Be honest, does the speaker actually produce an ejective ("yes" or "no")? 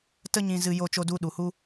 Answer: no